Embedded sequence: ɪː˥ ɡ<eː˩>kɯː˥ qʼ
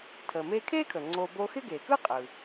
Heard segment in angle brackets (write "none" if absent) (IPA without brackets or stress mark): eː˩